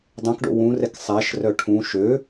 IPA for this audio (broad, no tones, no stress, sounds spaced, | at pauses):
dˤ œ̃ k ɖ o̰ w ũ r ɛ k sˤ æ ʃ r œ ʈʰ ũ ʃ ø